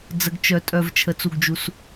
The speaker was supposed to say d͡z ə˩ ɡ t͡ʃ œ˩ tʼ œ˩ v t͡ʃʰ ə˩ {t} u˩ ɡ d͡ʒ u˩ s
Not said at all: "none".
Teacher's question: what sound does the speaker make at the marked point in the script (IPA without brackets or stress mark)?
t͡s